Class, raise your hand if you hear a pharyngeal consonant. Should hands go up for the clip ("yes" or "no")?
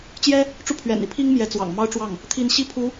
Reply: no